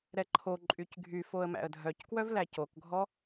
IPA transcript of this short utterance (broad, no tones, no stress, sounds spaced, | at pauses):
ɾ ɛ ǃʰ o ǃʼ y c ɡʱ y f o ə̯ m æ̰ ə̯ dʱ œ c k w œ v l æ c o k ɡʱ ɔ